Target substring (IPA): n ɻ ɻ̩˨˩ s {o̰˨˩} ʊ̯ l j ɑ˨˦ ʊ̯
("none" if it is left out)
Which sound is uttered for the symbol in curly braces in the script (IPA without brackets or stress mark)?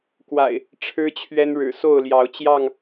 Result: o˥˨